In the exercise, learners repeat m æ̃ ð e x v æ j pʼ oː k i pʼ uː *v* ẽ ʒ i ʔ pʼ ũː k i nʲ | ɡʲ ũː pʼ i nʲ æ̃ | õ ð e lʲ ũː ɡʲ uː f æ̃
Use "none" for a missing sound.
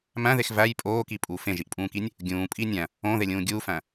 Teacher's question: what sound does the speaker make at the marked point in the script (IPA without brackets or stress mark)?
f